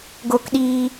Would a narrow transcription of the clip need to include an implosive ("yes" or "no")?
yes